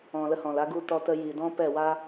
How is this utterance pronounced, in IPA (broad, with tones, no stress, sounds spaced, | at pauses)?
ɔ̃˨ l ə˧ h ɔ̃˨ l a˧ ɡ u˧ t ɔ˧ t ə˧ j i˨ d ɔ̃˦ p ɛ˦˨ w a˦